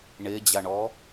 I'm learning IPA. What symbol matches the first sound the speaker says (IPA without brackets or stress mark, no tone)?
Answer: ɳ